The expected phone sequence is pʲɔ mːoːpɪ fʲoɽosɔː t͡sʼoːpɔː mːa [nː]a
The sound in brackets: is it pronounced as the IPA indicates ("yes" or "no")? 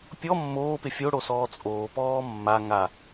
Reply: no